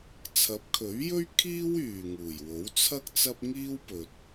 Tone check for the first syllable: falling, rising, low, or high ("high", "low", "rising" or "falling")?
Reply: rising